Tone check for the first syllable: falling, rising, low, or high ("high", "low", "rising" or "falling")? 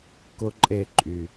high